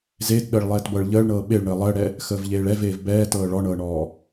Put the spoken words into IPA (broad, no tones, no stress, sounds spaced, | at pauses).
z eː t ɗ əː ɭ lˠ ɛː t b ɤ ɭ ʎ əː ɭ ɳ ɤː ɓ e ɭ ɳ əː lˠ əː ɽ ɛ | x əː v ʎ eː ɭ ɛ v eː v b ɛː t ɤː ɭ ɔ ɳ ɤː ɳ ɔː